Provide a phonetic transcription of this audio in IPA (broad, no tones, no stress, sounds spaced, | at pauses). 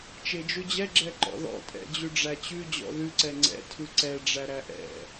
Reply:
t͡ʃ e d͡ʒ ʉ d͡ʑ ɛ ɡ͡ǁ ɛ ǃ ɔ̰ ð ɔ̰ tʼ ɛ̰ d͡ʑ ʉ ɖ͡ʐ æ t͡ɕ ʉ d͡ʑ ɔ̰ ð ʉ ǀ ɛ ŋ͡ǀ ɛ̰ tʰ ʉ ǀ ɛ ɖ͡ʐ æ ɾ æ ʔ ɛ̰